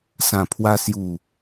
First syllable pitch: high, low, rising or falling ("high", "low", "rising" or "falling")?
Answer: low